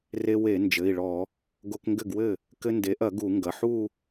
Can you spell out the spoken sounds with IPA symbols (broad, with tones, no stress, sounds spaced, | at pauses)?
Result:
r e˧ w e˧˩˧ n d͡ʒ ɘ˩˧˩ i̯ ɭ ɔ˧˩˧ | ɡ o˧ k ŋ ɡ ɘ˥˩ ɡ w ɘ˥˩ | k ɘ˧ n d e˩˥ ʔ ɐ˧˩˧ ɡ u˧˩˧ ŋ ɡ ɐ˩˧˩ ħ u˥˧